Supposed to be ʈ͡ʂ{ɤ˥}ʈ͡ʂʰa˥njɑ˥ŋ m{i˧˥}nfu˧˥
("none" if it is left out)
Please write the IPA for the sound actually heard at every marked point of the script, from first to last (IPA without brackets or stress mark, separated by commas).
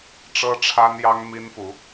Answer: ɤ˥, i˥